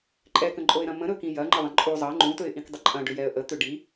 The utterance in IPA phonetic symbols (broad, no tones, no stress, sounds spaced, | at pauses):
ǃʼ ɛ k ə̃ ǃʼ o ɪ̯ ɾ ɐ̃ m ə̃ ɾ ɵ k ĩ j ɐ ŋ͡ǃ ə ðˤ ɐ̃ ǃʼ u zˤ ɐ ŋ͡ǃ ũ t ɵ ɪ̯ ʔ ĩ k dˤ ə ǃʼ ɐ̃ ɖ ʏ j ɛ ə̯ ʔ ə t̪ ʏ ɖ i